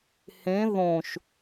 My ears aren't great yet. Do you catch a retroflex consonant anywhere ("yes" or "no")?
no